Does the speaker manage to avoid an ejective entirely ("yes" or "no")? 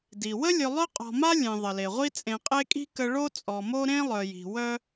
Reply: no